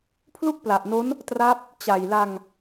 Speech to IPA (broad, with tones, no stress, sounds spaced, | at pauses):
pʰ l u˥˩ k̚ p l a˨˩ ʔ n o˦˥ n | t r a˦˥ p̚ | t͡ɕ a˨˩ j l a˧ ŋ